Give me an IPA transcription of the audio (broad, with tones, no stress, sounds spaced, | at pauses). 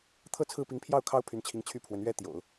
t̪ʰ ɤ˥˧ t͡sʰ ɹ̩˥˩ p i˧˥ ŋ pʰ j ɑ˥˩ ʊ̯ kʰ ɑ˥ ʊ̯ pʰ y˧˥ n t͡ɕʰ i˧˥ ŋ t͡ɕʰ y˥˩ pʰ w ə˧˥ n ɥ ɛ˥ t̪ j o̰˨˩˦ ʊ̯